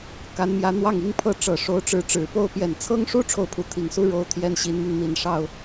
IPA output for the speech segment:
k a˧˥ n m j ä˧˥ n̪ w ɑ˥˩ ŋ i˥ ŋ pʰ ɤ˥˩ ʈ͡ʂ ɤ˨˩ ʂ o˧˥ ʊ̯ ʈ͡ʂ ɻ̩˧˥ ʈ͡ʂ ɻ̩˨˩ p o˥˩ ʊ̯ p j ɛ˨˩ n t͡sʰ ɤ˥ ŋ ʂ u˥ ʈ͡ʂʰ o˥˩ ʊ̯ pʰ u˧˥ t̪ʰ i˨˩ ŋ s u˥ ɻ o˥ ʊ̯ t̪ʰ j ɛ˥ n ɕ i˧˥ n m i˧ ŋ n̪ i˨˩ n ʂ ɑ˥˩ ʊ̯

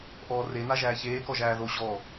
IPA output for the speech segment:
ʔ ɔː r e n a ʒ æː ç eː k ɔ ʒ æː ð o ɕ ɔ

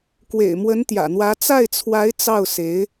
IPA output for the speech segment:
k w ḛ˨˩ ɪ̯ m w ə˧˥ n t̪ j ä̰˨˩ n̪ w ä˧˥ t͡s a˥˩ ɪ̯ t͡sʰ w a˧˥ ɪ̯ t͡s ɑ˥˩ ʊ̯ s e˧˥ ɪ̯

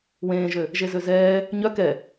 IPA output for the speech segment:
w ẽː ʒ ø | ʒ e z ø z ɛː | ɲ œ k ɛ

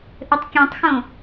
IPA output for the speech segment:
ʔ ɘ tˤ kʲ ẽ tˤ x õ

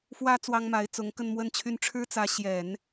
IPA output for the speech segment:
f w ä˥ t͡s w ɑ˥ ŋ m a˧˥ ɪ̯ t͡s ʊ˧˥ ŋ k ə˥˧ n m w ə˥˧ n t͡ɕʰ y˥˩ n ʈ͡ʂʰ ɻ̩˥ t͡s ä˧˥ ɕ j ɛ˨˩˦ n

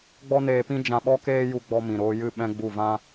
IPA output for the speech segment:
ɡ͡b ɔ˦ n eː˧ p ĩ˦ d͡ʒ ã˧ ɓ ɔ˦ k eː˦ j u˧ ɡ͡b ɔ˧ m ĩ˨ ɾ oː˧ j ɨ˦˨ ɓ ɛ̃˦ ɡ͡b u˦˨ v ã˦

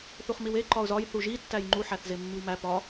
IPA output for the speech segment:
θ u χ m i w e ǃ ɒ ʊ̯ z ɒ j θ u ʒ i tː æ j ŋ͡ǃ u ħ æ θ z e mː i w m æ p ɒ

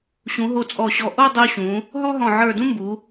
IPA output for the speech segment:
ɕ ũ˩˧ ɦ o˧ t͡sʼ ɔ˧˩ ɕ ɔ˧˩ ʔ o˥˧ dˤ u˧ ɕ ũ˩˧ | ɦ ɔ˥ ɦ ɔ̃˧˩ ʕ ə˞˧˩ d ũ˥ m b u˩˧

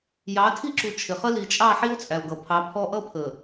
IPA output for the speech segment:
j ɑ˨˦ tʰ i˦ ǁ u˨ t͡ʃʰ ɪ˨ χ ə˦ l i˨ t͡ʃʼ ɑ˦˨ ħ i˦ o̯ t͡sʼ æ˨ o̯ ɡ ʌ˨ pʰ ɑ˨˦ pʰ ɔ˦ ʔ ʌ˦ pʰ ə˨

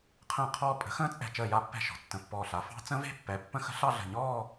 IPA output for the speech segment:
qʰ ə̃ː˥˩ qʰ ɔː˥˧ pʼ ə̤˩˥ x ə̃ː˦˥ t͡sʼ ɛ̤˧˩ t͡ʃ əː˥˩ j a˥˧ pː ɛ̤˥˩ ʃ ɔ̤˩ tː ə̃˧˩ pː ɔː˧˩ ɬ a˩˥ f ɑ̤˦˥ t͡s ə̃˦˥ v e̤˥˧ pː ɛ˩˥ pː ə̃˦˥ x ə̤˦˥ ɬ ɑ˥˧ ɮ ə̤˧˩ ɲ ɔː˥˧

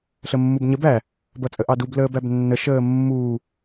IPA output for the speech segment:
ɬ ə mː u b ɲ ə b æ | b ʌ t͡sʼ ə ʔ ɑ d u b l əː b æ b nː ə ʃ əː mː uː

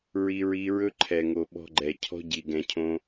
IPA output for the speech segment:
ɹ i˧ ɹ i˧ ɹ ɵ˦ ǃʰ ɛ˨ ŋ o˨ ɓ ɔ̤˧ ɡ͡ǃ ɛ˨ cʰ ɔ̤˦ ɟ i˨ ɡ ɛ̃˨ cʰ õ˧

